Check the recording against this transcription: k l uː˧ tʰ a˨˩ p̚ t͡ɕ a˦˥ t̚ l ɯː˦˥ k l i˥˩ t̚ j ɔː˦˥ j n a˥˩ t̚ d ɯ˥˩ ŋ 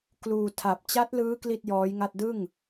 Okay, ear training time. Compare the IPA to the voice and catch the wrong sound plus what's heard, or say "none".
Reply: n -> ŋ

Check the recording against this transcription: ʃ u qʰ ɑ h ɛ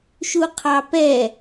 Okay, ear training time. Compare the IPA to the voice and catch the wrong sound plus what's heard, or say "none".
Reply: h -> p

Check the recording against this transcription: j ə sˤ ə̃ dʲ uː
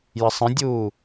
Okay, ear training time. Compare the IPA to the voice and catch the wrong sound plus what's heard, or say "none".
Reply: none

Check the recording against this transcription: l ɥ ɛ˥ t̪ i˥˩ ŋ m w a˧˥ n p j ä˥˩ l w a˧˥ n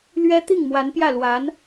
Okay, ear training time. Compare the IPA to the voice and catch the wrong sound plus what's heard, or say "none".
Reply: none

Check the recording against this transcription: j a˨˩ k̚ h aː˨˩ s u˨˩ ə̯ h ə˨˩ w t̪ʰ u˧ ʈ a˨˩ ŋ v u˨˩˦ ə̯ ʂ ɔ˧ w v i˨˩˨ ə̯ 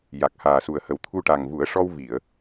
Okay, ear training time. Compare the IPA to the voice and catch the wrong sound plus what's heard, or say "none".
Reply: none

